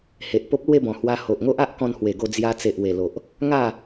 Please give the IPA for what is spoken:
h e˨ ʔ p o˦ p̚ l w e˥˧ b ɔ̃˨˩ h w a˧ h o˨ ʔ ŋ o˦ ʔ a˦ ʔ k ɔ̃˧ n h w e˨˩ ɡ o˧ d͡z j a˧ t͡s e˨ ʔ w e˨˩ l o˨ ʔ | ŋ a˥˧

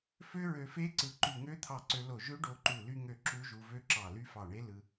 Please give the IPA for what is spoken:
f ø˦˥ ɹ ø˧ f e˦˥ ǀ ɯ˧˩ ǃ y˧˩ ŋ ø˦˥ t̪ʰ ɑ˧˩ ǀ ø˧ l o˧˩ ʒ ø˦˥ ɖ o˧ ǃ u˧˩ l y˧ ŋ ø˧˩ ǁ u˦˥ ʒ u˧ v ø˦˥ ǁ ɑ˧˩ l y˦˥ f ɑ˧˩ ɳ e˦˥ l ɯ˧

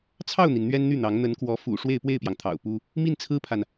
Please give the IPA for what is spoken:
t͡sʰ ɑ˥˩ ʊ̯ n̪ i˩ n n̪ ɥ ɛ˥ n n̪ y˥˩ n̪ ɑ˧˥ ŋ n̪ ə˧˥ n k w ɔ˧˥ f ṵ˨˩ ʂ w e˥˧ ɪ̯ p w e˥˩ ɪ̯ p j ɑ˩ ŋ t̪ʰ ɑ̰˨˩ ʊ̯ p u˥ | m i˥˩ n t͡sʰ ɹ̩˥ pʰ a˨ n

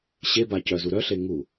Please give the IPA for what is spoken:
ɕ e b a c œ z u ɾ œ ɬ e ŋ u

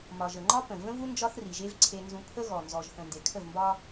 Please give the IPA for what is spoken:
m ɒ˨ ʒ ə˨ ŋ͡ǃ ɒ˦ p ə̃˨ v ə̃˦ v u˦ n d͡ʒ ɒ˦ θ r i˨ ʒ e˦ v ǀʰ e˦ n z ũ˦ pʰ ə˦ ɣ ɔ˨ n z ɔ˨ ʒ θ ə̃˨ n d e˨ kʰ ə˦˨ v m b ɒ˦

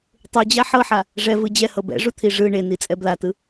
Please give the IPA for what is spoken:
tˤ u d͡ʑ a ħ ɤ ħ a | ʐ ɛ v ɯ d͡ʑ ɛ h ɤ b ɛ̰ ʐ u t̪ʰ i ʐ ɯ ɳ e n i t͡sʼ ɛ b l a t ɯ

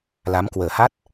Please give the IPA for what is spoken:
l a˨˦ m k w əː˨˩ h a˦˥ t̚

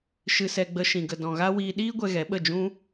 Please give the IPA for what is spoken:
ʃ ɨ˧ s ɛ˧ ɡ͡b ə˧ ʃ ĩ˨ ɡ ə˨ d ɔ̃˨ ɣ a˦ w iː˧ ɗ iː˦ ɡʷ ɛ˧ ɣ ɛ˨˦ ɓ ə˦˨ d͡ʒ ũ˧

